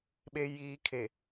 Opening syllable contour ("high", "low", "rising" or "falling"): low